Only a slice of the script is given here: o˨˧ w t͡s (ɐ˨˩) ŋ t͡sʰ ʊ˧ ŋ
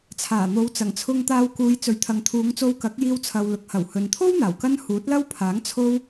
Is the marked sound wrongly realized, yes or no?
no